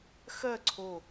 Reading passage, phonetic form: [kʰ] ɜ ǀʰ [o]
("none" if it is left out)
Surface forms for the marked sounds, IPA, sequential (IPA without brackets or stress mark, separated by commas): x, o